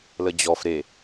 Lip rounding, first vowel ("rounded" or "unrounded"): unrounded